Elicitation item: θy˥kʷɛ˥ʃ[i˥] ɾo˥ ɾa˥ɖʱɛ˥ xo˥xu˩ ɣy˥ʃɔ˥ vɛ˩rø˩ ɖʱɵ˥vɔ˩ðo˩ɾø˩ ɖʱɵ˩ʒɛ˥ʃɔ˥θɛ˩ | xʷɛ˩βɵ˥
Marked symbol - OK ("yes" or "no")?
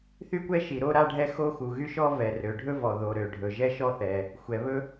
no